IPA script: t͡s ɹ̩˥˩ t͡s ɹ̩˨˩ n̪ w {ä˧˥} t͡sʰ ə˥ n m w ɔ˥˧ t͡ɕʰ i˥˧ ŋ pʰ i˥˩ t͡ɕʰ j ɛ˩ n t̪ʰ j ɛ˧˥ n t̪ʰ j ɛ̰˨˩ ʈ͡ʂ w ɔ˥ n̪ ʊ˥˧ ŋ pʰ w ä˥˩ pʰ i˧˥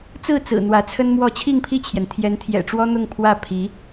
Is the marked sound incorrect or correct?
correct